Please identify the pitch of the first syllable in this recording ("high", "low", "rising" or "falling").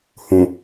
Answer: low